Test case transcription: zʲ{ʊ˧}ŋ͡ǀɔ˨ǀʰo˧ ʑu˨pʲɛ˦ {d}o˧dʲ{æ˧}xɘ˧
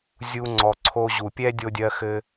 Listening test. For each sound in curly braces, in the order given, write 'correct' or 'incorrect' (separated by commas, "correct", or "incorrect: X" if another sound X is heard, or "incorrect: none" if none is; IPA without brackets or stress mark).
incorrect: u˧, incorrect: dʲ, incorrect: ɜ˧